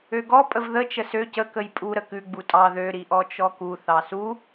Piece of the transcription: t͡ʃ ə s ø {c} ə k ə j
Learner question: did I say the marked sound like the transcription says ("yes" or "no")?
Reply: yes